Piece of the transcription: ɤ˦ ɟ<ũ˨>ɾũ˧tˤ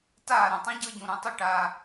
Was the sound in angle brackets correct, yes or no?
yes